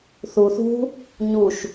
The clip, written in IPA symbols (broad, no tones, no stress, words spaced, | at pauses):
θu θṳ | ɲuʃ